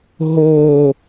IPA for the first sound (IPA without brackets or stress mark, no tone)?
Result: ɦ